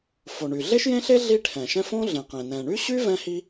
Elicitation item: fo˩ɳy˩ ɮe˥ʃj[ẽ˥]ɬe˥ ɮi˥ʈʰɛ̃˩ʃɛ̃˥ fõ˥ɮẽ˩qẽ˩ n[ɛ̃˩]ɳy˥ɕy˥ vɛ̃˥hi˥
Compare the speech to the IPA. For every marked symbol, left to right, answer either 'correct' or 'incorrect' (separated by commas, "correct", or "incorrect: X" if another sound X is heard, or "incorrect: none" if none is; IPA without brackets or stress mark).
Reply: correct, correct